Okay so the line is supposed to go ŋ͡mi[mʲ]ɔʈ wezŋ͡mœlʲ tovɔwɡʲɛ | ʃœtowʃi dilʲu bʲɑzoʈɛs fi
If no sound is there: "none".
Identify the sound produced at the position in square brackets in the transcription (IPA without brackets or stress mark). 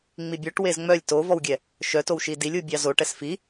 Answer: bʲ